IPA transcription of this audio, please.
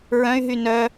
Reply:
ɹ œ̃ y̯ ɦ y n œ

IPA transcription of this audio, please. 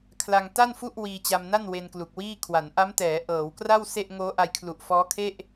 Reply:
kʰ l a˧ ŋ t a˥˩ n f u˥˩ ʔ w iː˧ t͡ɕ a˧ m n a˥˩ n w e˧ n k l u˨˩ k̚ w iː˥˩ kʰ w a˩˦ n ʔ a˦˥ m t ɛː˩˦ ʔ ɤː˩˦ w k r a˥˩ w s e˥˩ ʔ ŋ oː˦˥ ʔ a˧ j kʰ l u˨˩ ʔ f ɔː˦˥ kʰ e˥˩ ʔ

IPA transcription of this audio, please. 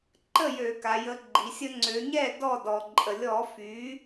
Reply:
ǃ ə˥˩ j ø˧˩˧ k a˩˧ j ə˩˥ ɡ͡ǃ i˩˧ sʲ ə˦ ŋ͡ǀ ø˩˧ ɲ ɛ˥˩ d ɔ˥˩ d ɔ˩ ǃʼ ə˩ lʲ ɔ˧˩˧ f y˩˥

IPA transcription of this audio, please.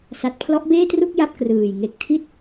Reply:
s a˨˩ t̚ pʰ l ɔ˦˥ ʔ b eː˥˩ t r u˥˩ k̚ j a˥˩ p̚ k r ɯː˨˩ j ŋ e˨˩ k̚ tʰ i˥˩ t̚

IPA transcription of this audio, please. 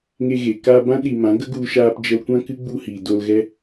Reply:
ŋ e˧ ɣ e˨ k a˧ b ã˦ ɗ i˨ m ã˨˦ ɡ ə˦ ɡ u˧ ʃ aː˧ p d͡ʒ ə˧ l kʷ ã˦ k ɨ˦ ɡ͡b u˧ h iː˨ d o˧ l ɣ ɛ˦

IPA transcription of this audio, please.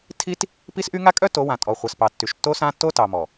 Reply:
tʰ i˦ t | p i˦ s ʔ y˦ ŋ a˦ kʼ œ˦ t o˨˦ w ã˨ tʼ ɔ˨ χʷ a˨ s p ɑ˨ tː y˨ ʃ tː o˦ s ã˦ tː o˦ t ɑ˨ m ɔ˨

